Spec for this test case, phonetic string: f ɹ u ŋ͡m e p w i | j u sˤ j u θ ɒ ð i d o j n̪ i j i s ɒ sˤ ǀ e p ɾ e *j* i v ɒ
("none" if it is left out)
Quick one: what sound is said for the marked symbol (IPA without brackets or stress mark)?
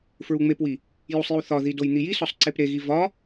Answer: ɣ